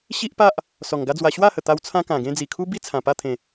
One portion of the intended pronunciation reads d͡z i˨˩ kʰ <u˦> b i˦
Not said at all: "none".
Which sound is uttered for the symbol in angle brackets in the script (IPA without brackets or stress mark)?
u˦